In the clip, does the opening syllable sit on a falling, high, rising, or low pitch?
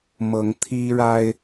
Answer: rising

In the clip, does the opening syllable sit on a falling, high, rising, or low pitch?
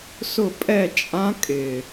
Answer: falling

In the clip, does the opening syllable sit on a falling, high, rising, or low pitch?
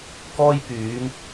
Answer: high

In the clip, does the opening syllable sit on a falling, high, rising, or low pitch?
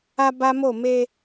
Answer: high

